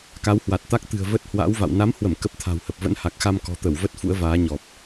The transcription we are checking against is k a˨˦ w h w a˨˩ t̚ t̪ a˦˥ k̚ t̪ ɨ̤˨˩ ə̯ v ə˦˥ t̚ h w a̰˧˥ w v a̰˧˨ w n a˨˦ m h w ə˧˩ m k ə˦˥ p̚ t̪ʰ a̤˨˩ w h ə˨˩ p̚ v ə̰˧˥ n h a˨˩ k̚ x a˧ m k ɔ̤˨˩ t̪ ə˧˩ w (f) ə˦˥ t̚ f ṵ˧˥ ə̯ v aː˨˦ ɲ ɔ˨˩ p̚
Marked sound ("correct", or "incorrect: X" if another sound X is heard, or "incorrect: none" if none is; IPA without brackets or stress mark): incorrect: v